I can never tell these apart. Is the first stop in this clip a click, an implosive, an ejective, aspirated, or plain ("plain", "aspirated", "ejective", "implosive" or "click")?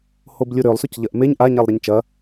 plain